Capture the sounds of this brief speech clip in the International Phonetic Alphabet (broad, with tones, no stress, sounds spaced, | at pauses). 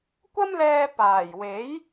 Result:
kʷ ɐ˥ m l ɛː˧ p aː˨˩ j w e˨˥ j